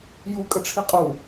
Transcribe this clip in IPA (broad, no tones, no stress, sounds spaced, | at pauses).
j u kʼ ə ʈ͡ʂʰ i qʼ u